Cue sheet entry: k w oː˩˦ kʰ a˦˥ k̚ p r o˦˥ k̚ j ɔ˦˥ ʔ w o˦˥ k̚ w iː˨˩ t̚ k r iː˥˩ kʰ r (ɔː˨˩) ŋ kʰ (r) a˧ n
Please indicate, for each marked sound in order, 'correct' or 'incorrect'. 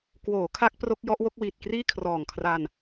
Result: correct, correct

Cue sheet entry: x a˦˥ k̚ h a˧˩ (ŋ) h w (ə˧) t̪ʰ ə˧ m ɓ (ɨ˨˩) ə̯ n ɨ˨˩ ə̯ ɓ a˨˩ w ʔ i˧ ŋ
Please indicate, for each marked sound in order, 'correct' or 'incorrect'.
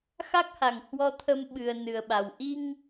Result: correct, incorrect, correct

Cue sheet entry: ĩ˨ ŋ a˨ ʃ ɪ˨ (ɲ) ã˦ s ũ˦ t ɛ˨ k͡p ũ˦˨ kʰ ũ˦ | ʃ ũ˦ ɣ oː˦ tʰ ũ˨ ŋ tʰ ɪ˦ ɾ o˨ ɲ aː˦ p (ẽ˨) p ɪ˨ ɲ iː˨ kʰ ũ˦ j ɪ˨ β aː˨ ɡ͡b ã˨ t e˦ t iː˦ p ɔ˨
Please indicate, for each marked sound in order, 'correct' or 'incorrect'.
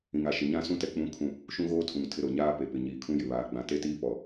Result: correct, incorrect

